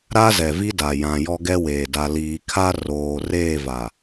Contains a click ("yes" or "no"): no